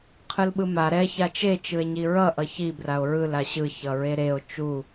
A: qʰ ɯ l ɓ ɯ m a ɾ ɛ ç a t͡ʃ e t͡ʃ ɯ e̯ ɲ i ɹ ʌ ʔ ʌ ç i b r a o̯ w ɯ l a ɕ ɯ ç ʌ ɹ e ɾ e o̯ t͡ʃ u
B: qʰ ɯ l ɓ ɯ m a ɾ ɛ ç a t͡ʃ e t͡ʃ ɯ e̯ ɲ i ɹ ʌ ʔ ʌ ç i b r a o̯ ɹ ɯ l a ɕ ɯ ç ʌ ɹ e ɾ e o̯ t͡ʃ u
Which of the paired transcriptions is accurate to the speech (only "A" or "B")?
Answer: B